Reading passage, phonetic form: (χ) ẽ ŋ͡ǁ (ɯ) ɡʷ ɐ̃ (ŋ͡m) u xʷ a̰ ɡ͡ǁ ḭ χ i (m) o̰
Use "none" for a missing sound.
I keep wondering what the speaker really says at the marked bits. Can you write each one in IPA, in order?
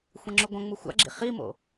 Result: xʷ, u, ŋ͡m, m

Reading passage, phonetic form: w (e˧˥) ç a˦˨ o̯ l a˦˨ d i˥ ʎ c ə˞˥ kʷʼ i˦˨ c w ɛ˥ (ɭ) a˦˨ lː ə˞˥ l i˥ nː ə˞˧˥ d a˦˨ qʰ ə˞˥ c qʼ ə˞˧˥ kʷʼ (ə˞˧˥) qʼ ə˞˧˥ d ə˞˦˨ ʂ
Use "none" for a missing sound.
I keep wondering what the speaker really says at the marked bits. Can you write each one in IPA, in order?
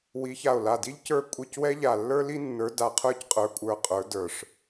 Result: i˧˥, ʎ, ə˞˦˨

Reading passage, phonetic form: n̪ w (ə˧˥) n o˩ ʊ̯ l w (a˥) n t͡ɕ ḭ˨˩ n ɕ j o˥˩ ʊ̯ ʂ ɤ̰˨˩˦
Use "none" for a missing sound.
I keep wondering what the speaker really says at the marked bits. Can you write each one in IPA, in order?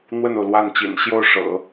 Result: ə˥˩, a˥˩

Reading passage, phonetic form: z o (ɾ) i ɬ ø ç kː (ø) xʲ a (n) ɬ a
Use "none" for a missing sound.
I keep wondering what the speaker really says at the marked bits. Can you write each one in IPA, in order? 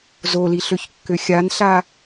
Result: l, ø, n

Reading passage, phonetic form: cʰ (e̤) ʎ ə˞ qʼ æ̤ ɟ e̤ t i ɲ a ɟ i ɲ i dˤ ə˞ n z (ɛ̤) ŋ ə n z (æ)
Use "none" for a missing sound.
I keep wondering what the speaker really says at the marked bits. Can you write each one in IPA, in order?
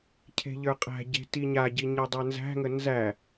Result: e̤, æ̤, æ

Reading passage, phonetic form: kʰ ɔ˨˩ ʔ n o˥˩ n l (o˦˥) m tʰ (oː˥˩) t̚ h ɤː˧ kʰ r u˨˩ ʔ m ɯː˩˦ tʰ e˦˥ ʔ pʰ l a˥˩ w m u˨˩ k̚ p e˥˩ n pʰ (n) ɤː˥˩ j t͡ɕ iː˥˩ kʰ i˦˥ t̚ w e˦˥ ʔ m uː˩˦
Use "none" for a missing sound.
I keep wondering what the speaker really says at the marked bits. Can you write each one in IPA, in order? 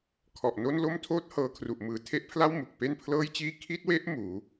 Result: o˥˩, oː˥˩, l

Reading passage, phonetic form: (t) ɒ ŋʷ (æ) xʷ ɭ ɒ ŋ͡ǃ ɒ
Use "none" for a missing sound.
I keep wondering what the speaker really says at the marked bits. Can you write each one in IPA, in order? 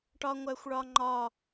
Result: ʈ, æ

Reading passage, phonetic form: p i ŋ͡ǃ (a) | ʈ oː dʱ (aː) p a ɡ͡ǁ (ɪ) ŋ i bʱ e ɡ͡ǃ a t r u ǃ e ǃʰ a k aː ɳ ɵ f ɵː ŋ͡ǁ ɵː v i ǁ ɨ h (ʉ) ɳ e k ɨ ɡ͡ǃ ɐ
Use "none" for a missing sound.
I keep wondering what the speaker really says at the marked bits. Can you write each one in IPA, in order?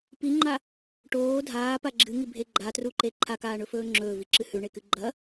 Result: a, aː, ɨ, ʉ

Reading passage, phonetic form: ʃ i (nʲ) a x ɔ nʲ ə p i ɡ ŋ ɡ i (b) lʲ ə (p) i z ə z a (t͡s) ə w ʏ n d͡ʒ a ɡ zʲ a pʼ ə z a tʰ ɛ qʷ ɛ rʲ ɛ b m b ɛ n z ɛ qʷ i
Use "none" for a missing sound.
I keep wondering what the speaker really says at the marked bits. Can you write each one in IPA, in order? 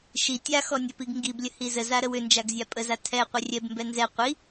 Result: tʲ, b, h, ɾ

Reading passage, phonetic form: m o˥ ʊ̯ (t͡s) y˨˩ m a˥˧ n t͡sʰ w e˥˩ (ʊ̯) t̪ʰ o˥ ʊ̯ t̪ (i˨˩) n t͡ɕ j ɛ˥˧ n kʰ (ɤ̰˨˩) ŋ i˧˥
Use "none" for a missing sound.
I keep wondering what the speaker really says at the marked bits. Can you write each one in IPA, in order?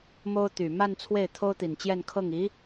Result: t̪, ɪ̯, i˨˩, ɤ˥˩

